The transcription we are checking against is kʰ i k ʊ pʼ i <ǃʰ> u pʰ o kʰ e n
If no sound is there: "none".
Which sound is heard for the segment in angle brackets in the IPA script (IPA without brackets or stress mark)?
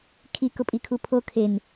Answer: kʰ